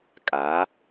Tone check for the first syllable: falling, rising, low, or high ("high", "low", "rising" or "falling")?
rising